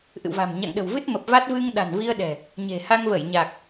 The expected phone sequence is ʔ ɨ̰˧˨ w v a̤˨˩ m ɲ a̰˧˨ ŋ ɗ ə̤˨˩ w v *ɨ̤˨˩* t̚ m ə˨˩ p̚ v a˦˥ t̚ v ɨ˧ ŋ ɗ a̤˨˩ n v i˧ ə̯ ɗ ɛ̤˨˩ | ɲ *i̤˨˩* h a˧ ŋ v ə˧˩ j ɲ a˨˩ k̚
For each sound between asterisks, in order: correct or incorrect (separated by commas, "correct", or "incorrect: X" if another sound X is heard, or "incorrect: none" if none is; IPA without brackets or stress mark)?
incorrect: ɨ˦˥, incorrect: e̤˨˩